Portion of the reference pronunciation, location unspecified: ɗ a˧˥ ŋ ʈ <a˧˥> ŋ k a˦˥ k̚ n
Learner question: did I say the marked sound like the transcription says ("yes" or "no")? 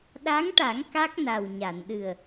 no